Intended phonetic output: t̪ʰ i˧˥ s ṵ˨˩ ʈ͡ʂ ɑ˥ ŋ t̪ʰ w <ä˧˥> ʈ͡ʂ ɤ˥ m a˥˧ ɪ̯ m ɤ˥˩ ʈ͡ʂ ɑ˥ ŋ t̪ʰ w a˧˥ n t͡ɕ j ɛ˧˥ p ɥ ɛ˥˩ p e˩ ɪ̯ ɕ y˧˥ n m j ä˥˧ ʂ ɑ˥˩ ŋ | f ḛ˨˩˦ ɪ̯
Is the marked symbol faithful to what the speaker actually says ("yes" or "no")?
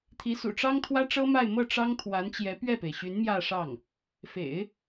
no